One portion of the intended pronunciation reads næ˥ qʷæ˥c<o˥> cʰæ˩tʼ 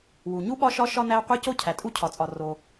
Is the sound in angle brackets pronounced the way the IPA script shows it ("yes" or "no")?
yes